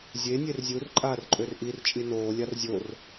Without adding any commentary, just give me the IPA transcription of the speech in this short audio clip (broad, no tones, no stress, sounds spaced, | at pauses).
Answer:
zʲ e nʲ e r zʲ u r ǃʼ aː r ǃʼ ø r ʔ i r t͡ʃʼ i n oː lʲ a r zʲ o r